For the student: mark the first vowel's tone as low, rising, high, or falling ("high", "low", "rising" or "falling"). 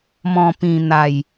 low